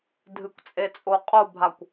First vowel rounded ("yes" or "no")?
no